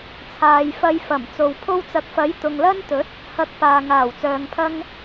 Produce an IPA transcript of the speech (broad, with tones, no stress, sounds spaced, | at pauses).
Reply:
t͡sʰ aː˨ j f ɐ˧ j f ɐ˨˩ m t͡s o˨ w pʰ o˧ w t͡s ɐ˨˥ k̚ f ɐ˨˥ j t̪ ʊ˨ ŋ l ɐ˥ n t̪ ɵ˨˥ t̚ | h ɐ˨ k̚ p aː˨ ŋ aː˨˩ w t͡s œː˨ ŋ pʰ ɐ˧ ŋ